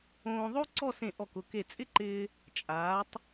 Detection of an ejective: present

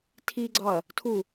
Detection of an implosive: absent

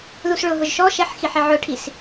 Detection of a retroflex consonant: present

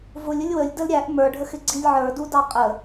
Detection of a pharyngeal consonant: present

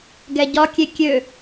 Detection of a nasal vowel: absent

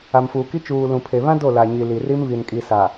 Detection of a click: absent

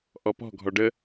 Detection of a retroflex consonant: present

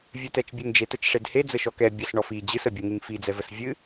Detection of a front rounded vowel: absent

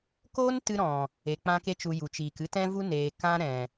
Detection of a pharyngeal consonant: absent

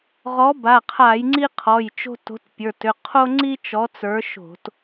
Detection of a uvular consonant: present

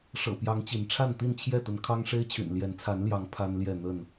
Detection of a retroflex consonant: present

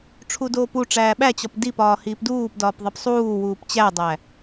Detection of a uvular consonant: absent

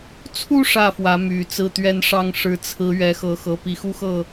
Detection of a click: absent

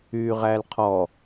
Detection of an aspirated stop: present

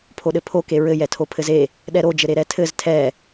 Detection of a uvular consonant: absent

